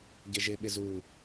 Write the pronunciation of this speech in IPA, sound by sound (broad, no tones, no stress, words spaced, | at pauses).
ɟɪʒɪɓɪz u